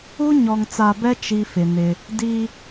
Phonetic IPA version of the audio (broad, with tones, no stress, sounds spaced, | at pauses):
u˦ ɲ ɔ˨ ŋ t͡s a˨ b ɛ˦ t͡ʃ i˦ f ɪ˨ n ɪ˦ | d i˦